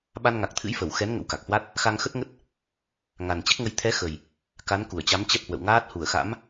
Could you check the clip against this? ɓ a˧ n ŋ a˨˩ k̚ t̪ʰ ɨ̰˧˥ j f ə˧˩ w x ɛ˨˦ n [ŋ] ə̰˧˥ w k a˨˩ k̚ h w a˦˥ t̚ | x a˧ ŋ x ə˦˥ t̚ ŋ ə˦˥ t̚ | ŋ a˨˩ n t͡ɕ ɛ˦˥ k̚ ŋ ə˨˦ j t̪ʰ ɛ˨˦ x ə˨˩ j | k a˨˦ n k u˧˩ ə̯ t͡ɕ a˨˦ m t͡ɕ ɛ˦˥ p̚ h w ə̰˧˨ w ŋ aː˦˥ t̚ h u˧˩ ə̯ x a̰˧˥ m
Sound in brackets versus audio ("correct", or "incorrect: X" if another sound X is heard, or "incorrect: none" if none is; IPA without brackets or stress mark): correct